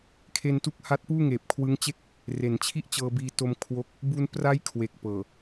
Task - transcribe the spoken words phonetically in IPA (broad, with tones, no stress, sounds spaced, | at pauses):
kʰ e˧ n t u˦˥ k̚ h a˦˥ t̚ p uː˥˩ ŋ eː˨˩ p̚ kʰ w ɯ˦˥ ŋ t͡ɕ e˥˩ k̚ | r e˩˦ n t͡ɕʰ i˥˩ ʔ t͡ɕ ɤː˧ b iː˧ t o˧ m kʰ w o˥˩ k̚ | b u˧ n p r a˦˥ j kʰ w e˨˩ k̚ p ɤː˨˩